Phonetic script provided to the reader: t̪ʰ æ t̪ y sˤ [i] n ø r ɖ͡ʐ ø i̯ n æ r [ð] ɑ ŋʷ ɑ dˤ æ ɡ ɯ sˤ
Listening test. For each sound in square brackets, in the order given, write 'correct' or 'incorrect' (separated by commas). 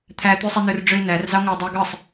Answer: correct, incorrect